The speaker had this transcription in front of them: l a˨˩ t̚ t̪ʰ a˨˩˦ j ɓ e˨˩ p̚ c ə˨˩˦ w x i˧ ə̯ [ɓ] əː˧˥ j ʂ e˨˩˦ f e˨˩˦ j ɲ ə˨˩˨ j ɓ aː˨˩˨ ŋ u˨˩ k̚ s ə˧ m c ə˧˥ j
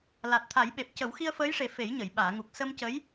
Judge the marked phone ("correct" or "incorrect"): incorrect